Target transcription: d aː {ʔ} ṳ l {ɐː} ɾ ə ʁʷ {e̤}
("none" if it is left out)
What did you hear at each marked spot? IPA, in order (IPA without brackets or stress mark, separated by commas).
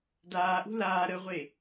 ʔ, aː, e